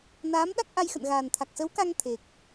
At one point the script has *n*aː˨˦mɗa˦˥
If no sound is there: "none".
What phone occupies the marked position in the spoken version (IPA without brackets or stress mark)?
n